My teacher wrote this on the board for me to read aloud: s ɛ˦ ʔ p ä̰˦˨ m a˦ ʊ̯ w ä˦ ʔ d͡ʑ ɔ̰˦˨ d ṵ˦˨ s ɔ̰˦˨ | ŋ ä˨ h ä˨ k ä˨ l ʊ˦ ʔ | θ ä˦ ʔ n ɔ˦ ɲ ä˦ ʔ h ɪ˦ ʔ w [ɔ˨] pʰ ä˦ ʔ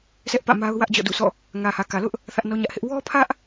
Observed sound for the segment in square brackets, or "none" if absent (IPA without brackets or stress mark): ɔ˦